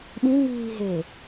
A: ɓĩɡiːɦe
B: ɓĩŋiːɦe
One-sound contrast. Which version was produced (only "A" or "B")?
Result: B